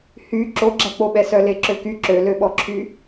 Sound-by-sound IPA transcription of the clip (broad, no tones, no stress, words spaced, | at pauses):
hy ǁoɡ͡ǁæk͡poɓɛ sœleǁøky ǁøløɓɔǁʰy